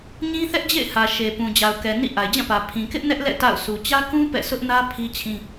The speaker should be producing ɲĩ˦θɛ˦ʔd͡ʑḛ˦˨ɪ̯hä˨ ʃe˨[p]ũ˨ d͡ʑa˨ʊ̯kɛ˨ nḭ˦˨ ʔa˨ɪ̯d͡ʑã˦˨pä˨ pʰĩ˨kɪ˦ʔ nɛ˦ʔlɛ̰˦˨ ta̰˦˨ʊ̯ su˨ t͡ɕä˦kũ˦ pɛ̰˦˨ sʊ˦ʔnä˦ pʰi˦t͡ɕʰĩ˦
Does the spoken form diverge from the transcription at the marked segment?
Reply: no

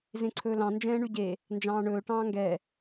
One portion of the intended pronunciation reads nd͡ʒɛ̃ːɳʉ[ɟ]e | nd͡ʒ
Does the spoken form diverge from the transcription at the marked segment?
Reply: no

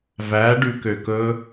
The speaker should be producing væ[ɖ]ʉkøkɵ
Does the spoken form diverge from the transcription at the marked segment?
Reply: no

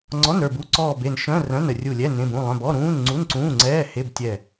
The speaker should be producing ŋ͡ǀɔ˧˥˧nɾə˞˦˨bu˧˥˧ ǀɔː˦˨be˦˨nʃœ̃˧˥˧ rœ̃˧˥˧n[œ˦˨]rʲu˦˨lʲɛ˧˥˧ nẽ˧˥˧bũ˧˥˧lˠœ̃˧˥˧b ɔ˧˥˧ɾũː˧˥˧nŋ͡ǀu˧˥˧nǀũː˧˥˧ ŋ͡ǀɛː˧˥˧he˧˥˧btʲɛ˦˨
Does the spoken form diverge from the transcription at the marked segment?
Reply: yes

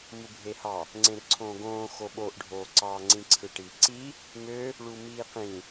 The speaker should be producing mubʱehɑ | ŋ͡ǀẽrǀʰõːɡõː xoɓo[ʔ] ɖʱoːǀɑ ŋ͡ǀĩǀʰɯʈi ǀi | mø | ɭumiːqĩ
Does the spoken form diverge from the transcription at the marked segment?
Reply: no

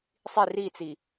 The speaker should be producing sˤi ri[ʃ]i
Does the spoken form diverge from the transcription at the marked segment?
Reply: yes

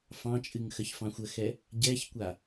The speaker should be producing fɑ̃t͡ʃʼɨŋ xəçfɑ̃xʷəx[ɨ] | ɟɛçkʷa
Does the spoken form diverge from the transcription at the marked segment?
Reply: yes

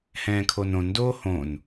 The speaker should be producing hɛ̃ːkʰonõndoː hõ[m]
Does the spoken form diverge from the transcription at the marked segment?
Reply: yes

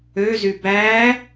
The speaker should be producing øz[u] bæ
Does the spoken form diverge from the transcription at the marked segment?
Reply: yes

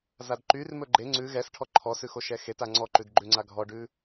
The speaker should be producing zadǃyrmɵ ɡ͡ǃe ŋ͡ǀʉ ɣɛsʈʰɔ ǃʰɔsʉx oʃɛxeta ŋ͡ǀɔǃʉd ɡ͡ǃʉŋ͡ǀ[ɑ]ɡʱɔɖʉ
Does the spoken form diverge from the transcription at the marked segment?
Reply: yes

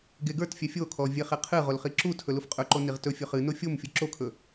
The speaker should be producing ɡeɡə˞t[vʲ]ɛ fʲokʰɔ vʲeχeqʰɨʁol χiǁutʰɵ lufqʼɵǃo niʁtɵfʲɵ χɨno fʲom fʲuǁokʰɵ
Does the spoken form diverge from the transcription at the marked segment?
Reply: yes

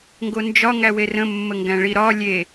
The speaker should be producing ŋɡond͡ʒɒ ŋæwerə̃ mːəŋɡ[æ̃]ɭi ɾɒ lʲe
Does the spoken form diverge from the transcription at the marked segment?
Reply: no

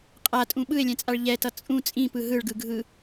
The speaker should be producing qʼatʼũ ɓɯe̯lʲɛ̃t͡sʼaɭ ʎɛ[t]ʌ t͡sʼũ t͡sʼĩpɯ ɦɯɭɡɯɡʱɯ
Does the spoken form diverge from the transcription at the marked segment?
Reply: no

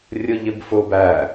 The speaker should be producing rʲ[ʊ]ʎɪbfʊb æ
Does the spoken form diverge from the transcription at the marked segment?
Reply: no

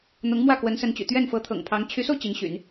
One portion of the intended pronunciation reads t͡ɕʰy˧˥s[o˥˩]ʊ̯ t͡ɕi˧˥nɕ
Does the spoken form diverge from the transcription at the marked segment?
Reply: yes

